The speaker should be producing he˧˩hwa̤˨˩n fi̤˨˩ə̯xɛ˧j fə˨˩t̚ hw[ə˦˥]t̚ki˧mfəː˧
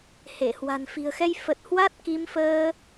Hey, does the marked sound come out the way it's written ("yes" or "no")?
no